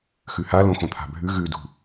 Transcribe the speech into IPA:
x ʉ h a l õ x õ t̪ʰ a̤ bʱ ʉ ɣ ʉ d ṳ

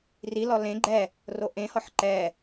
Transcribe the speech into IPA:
r i l ɔ l ẽ ɡ͡ǃ ɛ | r o ʔ ẽ h ɔ ħ ǃ ɛ

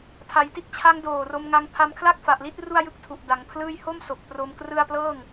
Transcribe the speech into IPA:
tʰ a˩˦ j t i˥˩ t̚ t͡ɕʰ a˦˥ ŋ d oː˨˩ r o˧ m ŋ a˧ ŋ pʰ a˧ m kʰ l a˥˩ k̚ f a˨˩ ʔ l i˥˩ t̚ r u˥˩ a̯ j ɯ˥˩ k̚ tʰ u˨˩ ʔ d a˩˦ ŋ pʰ l ɯː˥˩ j h o˥˩ m s o˨˩ k̚ p r o˧ m k r ɯ˥˩ a̯ p l ɤː˥˩ ŋ

